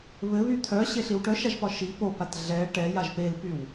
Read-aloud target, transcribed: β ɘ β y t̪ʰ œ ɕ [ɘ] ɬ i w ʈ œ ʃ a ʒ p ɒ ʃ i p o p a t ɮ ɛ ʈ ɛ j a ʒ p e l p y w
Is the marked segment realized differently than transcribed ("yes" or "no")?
yes